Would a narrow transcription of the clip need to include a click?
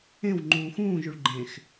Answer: yes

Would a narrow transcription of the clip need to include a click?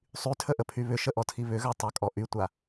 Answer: no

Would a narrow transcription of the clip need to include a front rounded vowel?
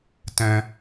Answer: no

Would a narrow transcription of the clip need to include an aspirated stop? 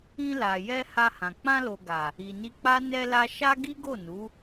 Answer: no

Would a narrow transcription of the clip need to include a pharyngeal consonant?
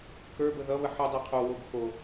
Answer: yes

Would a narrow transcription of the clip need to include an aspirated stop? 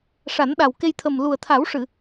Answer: yes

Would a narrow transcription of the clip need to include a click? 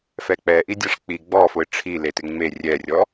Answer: no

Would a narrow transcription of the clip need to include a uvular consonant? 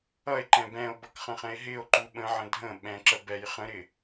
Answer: yes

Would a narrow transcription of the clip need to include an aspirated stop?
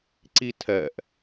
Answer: yes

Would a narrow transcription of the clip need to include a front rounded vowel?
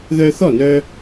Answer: yes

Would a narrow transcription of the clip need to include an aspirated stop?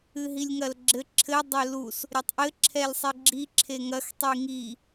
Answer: yes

